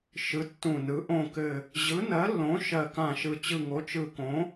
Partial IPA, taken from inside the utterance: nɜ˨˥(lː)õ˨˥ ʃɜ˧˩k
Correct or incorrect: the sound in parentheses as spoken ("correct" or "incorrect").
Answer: correct